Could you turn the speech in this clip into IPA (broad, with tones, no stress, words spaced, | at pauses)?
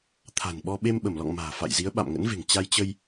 t̪ʰa̤˨˩nɓɔ˧ ɓe˧mɓə˧˩mlɔ̰˧˨ŋ ma̤ː˨˩fa̰˧˨jzi˨˦ə̯ ɓa̰˧˨mŋə̰˧˥nve̤˨˩ŋ t͡ɕa˧jt͡ɕə˧j